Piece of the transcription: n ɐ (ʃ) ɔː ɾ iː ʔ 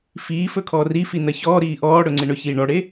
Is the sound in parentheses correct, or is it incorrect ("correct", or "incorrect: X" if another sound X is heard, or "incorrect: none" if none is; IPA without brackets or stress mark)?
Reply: incorrect: ç